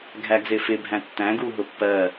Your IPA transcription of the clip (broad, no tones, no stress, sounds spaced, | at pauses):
ɡʱ æ ɡ z ɪ f ɪ bʱ æ̃ tː æ̃ ɡ u ɦ ʊ pː ɜ